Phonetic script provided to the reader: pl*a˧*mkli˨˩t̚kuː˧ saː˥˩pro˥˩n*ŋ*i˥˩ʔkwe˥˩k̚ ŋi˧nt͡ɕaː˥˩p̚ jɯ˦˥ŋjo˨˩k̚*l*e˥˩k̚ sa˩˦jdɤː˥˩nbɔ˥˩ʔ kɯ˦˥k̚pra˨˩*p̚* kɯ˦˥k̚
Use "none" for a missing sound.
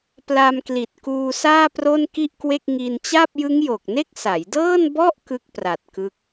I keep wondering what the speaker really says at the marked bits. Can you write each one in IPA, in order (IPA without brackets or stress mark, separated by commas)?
a˧, k, n, t̚